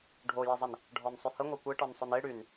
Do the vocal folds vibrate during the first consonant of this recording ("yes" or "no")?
yes